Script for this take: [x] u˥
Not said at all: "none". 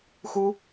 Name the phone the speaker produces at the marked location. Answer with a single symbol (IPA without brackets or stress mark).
x